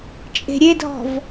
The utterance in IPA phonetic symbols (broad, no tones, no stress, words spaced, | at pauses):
t͡ʃʼe̤ɾʲedʱɔ̤v